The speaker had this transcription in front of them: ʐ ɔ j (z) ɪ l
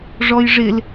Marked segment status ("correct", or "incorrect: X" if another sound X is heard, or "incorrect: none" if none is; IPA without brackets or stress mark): incorrect: ʐ